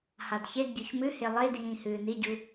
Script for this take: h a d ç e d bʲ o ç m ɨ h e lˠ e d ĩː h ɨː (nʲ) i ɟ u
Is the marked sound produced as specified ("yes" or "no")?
no